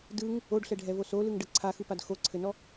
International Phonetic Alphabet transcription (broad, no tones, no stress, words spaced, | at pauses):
dɯŋ | oɖɬɛɖʱɛvo solɯŋɖə ǀʰaxɯpad xoǀʰɘnɔ